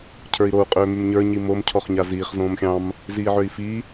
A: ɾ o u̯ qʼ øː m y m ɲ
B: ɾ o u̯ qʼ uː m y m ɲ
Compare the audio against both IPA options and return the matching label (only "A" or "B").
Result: A